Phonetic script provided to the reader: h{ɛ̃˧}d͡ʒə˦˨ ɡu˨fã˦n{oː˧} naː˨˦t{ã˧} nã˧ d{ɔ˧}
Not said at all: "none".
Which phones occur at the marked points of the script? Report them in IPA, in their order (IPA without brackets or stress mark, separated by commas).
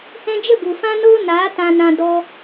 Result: ɛ̃˧, oː˦, ã˧, ɔ˧